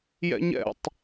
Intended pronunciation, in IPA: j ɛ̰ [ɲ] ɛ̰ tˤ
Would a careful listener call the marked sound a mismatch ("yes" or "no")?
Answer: no